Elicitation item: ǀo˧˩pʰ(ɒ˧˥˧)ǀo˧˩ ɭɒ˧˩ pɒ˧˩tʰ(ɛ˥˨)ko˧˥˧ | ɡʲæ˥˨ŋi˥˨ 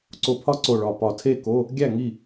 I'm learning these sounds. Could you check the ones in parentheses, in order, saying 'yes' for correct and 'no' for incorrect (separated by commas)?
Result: no, no